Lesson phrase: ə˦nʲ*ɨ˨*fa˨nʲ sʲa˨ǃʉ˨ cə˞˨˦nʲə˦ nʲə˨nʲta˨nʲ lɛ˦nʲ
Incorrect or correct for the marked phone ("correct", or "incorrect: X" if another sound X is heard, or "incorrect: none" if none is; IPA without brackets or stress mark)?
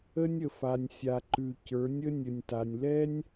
incorrect: ə˨